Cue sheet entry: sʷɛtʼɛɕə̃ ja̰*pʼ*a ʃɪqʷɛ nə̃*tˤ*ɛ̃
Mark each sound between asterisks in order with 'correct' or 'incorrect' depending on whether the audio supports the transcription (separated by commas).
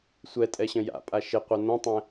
correct, correct